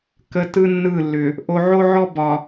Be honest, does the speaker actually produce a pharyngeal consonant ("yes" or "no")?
yes